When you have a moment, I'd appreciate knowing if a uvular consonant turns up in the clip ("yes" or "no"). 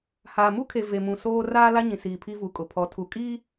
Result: no